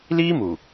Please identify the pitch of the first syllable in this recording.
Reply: high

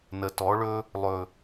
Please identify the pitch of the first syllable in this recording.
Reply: low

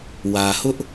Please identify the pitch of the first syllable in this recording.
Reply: low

